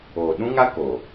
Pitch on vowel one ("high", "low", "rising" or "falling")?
low